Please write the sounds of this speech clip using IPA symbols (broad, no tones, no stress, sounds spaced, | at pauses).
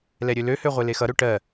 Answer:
l ɛ ɾʲ ø l ø h ø ʁʷ e l e x ʌ ɾ ø ʈ ɜ